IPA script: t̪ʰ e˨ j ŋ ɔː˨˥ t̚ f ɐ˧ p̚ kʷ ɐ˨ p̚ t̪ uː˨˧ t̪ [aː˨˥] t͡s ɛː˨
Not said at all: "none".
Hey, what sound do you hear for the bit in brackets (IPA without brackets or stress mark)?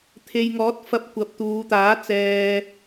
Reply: aː˨˥